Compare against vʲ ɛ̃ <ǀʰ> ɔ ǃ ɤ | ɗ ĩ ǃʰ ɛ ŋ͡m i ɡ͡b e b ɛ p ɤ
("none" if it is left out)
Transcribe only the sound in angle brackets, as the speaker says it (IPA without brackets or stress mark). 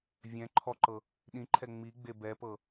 ǃʰ